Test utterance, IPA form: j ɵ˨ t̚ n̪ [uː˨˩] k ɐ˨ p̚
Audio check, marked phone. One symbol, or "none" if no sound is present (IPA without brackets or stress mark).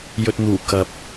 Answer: uː˨˩